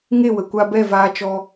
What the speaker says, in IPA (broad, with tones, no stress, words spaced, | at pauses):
ŋe˦˨wə˨ kʷa˧bɛ˦˨ vaː˧t͡ʃɔ˧